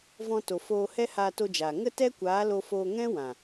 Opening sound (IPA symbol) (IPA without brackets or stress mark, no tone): v